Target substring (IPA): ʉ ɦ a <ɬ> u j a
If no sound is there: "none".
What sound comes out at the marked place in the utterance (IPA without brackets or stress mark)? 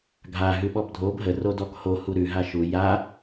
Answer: ʃ